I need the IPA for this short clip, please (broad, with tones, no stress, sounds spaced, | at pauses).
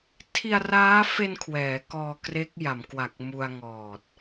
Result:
tʰ i˧ a̯ r aː˦˥ f e˧ n kʰ w ɛː˩˦ k ɔː˧ k r e˦˥ k̚ j a˩˦ m k w a˨˩ k̚ m u˧ a̯ ŋ ɔː˨˩ t̚